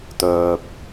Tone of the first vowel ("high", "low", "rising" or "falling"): low